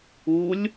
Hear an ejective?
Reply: no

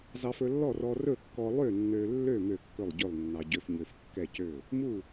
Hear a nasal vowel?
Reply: no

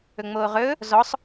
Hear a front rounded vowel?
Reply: no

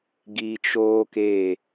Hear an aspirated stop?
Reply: no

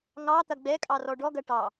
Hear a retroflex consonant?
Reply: yes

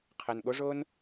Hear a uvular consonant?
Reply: yes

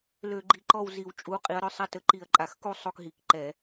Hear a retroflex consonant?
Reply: no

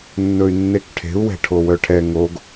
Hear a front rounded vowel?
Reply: yes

